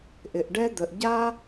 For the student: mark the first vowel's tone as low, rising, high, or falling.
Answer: low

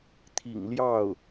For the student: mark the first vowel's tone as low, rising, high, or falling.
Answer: low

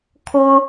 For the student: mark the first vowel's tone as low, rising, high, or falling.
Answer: high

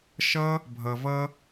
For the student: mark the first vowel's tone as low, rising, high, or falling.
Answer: high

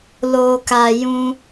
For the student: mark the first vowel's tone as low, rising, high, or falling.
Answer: low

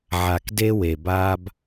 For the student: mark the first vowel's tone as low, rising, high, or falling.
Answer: low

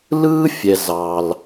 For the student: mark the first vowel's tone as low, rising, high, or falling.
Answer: high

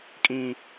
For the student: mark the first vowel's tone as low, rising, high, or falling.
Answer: high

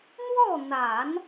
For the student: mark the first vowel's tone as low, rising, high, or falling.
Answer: falling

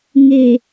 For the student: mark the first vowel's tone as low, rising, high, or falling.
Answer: low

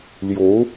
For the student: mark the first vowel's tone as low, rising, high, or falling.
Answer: rising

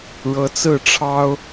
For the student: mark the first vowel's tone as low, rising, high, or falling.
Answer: rising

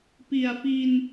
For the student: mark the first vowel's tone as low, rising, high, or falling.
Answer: low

